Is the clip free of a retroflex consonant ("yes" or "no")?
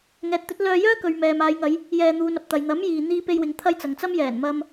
yes